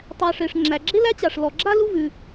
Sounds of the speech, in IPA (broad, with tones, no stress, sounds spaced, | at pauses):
tˤ æ˨ ʂ e˩ ʂ ŋ͡ǁ æ˩ ɡ͡ǁ e˥ l æ˥ t͡ɕ a˩ ʂ l ɔ˩ ɡ͡ǁ a˥ l u˦ v ʉ˩